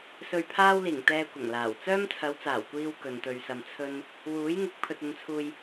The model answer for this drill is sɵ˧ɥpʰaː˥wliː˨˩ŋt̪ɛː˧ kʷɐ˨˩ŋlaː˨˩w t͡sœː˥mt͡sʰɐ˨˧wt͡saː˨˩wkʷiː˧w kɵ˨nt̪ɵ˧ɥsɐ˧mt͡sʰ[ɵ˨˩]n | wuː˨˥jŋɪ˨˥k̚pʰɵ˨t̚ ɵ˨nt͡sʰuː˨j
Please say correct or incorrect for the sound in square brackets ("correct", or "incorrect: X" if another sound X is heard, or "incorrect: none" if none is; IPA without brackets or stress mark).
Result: incorrect: ɵ˥